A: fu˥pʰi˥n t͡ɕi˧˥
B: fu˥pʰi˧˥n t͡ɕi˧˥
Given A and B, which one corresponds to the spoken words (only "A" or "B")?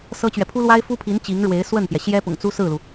B